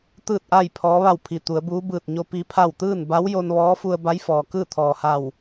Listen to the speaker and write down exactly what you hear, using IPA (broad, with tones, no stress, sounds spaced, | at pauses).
t̪ ɯː˥˨ t̚ ʔ a˥˨ j pʰ ɔː˧˥ ʋ a˥˨ w pʰ i˧˩ t̪ u˩˧ ə̯ b uː˧˥ b ɯː˧˩ t̚ ɲ o˧ p i˧˥ pʰ a˥˨ w t̪ ɯː˥˨ n b a˧˥ w j o˧ n ʋ ɔː˧˥ f u˧ ə̯ b a˧˥ j f ɔː˩ k ɯː˥˨ t̪ʰ ɔː˩ h a˧˩ w